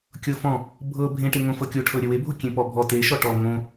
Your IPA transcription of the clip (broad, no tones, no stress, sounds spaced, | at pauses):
kʲ ɤ f ɔ̃ | bʱ ɤ bʱ ẽ ʈ e ŋ õ f ɤ kʲ o ʈʰ ɤ ɾʲ ɘ w e bʱ o kʲ ẽ p ɔ bʱ ɔ t e ʃ ɔ ʈ ɔ ŋ õ